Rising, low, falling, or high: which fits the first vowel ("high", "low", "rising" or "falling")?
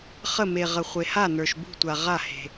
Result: falling